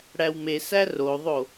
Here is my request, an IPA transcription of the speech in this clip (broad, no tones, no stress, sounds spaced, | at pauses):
ɽ æ w m e s æ r o ðˤ o